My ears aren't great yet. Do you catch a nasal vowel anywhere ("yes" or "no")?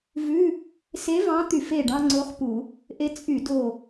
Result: yes